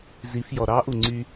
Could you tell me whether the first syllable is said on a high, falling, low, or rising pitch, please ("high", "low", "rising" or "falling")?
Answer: rising